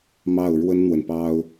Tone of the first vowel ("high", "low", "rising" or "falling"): falling